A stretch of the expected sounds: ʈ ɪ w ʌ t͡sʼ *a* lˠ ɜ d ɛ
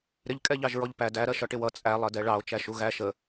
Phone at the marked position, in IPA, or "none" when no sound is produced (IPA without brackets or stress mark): æ